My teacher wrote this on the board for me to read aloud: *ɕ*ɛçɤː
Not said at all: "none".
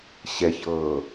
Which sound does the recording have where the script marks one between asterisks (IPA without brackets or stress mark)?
ɕ